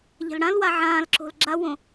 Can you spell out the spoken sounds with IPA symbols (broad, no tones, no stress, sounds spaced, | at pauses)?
ʎ ɛ̤ l ɽ ã l w a ʕ ãː l ǁ o̤ l ɡ͡ǁ a w õ